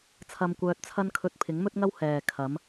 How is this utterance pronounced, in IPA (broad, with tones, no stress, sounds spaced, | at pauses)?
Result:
t͡sʰ ɐ˧ m kʷ œː˧ t̚ t͡sʰ ɐ˥ n kʰ ɵ˧ t̚ pʰ ɪ˨˥ ŋ m ɵ˥ t̚ ŋ ɐ˥ w h ɛː˨ kʰ ɐ˨˥ m